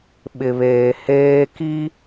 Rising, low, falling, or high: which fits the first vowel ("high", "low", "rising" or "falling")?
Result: low